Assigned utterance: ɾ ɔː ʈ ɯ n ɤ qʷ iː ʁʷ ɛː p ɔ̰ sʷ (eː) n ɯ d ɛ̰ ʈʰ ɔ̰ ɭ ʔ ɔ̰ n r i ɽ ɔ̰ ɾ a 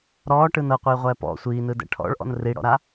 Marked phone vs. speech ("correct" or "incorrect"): incorrect